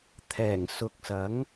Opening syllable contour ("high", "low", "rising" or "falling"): low